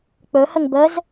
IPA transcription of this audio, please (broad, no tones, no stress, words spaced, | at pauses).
k͡pɵhəŋ bəz